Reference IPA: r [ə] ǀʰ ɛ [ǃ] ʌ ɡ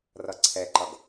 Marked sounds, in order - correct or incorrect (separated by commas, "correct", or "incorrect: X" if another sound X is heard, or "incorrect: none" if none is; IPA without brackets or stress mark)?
incorrect: ʌ, correct